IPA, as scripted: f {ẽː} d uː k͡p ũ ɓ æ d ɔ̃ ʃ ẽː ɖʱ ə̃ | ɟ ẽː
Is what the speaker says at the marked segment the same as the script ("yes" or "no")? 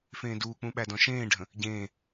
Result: yes